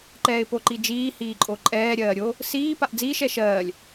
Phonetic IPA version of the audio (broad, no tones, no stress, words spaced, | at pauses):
ǃɛːɪ̯poǃid͡ʒiː hiːǃʼoǃʼɛː ɾʲɜːɾʲo | siː paʔd͡ziːʃ ɛʃɜːlʲ